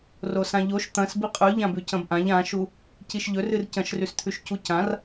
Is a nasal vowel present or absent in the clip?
present